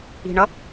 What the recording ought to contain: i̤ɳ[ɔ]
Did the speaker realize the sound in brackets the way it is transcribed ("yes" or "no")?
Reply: no